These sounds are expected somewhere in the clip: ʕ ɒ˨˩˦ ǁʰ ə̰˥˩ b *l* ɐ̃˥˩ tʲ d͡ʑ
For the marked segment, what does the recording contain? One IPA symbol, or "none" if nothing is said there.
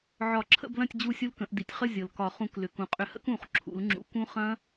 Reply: l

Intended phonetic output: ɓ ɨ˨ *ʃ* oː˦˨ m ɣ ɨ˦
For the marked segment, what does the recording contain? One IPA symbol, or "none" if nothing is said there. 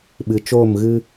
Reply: t͡ʃ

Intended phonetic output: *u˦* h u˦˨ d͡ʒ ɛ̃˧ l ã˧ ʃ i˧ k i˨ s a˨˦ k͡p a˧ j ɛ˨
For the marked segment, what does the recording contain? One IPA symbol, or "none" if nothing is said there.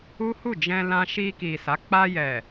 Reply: u˦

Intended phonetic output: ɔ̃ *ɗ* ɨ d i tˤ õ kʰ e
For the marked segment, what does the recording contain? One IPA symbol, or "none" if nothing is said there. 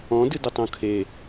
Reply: d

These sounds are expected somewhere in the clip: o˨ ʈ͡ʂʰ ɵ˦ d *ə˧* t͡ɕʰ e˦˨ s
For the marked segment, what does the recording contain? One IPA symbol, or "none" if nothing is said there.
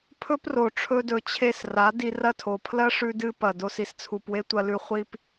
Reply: ɵ˧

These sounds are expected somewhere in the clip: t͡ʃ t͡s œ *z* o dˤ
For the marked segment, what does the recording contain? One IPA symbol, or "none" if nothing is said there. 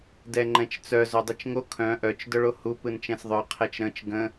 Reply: z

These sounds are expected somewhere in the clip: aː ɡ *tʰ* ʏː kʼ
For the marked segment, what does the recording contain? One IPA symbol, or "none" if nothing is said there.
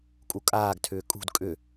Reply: tʰ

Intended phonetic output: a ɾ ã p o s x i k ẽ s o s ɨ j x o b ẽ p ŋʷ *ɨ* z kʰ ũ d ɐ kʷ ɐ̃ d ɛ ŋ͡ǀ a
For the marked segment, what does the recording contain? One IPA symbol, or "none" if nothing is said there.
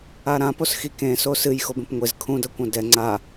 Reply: e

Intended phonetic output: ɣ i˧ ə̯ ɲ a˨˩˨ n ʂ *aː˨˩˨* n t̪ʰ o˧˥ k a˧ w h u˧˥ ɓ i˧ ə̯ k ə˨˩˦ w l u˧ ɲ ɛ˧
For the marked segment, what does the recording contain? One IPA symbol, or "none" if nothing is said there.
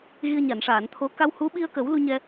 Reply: aː˨˩˨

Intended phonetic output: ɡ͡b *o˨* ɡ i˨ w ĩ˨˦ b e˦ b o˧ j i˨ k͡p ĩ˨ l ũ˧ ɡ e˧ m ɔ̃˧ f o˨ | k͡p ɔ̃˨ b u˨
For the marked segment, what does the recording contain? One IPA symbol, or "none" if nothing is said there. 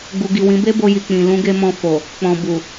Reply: u˨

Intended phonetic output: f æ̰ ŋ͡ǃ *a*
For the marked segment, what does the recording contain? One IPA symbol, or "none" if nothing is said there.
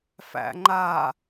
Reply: a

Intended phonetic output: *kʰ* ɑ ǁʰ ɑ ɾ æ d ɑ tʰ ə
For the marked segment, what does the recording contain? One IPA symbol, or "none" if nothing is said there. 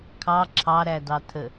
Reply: kʰ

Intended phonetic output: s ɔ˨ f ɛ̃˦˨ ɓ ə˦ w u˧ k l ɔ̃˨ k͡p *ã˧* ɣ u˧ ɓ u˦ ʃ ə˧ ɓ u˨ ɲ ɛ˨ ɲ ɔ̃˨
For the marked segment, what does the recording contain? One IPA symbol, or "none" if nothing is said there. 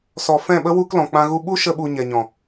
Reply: ã˧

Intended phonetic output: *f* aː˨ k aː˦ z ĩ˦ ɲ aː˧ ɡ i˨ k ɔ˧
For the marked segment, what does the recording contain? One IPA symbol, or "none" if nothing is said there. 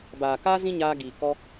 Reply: b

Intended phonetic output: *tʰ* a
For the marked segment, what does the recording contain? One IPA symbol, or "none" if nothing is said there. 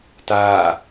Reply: t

